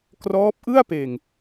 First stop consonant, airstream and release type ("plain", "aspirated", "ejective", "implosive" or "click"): plain